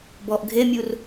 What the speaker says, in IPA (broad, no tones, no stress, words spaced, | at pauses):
bɔʔ ɡʱemʲur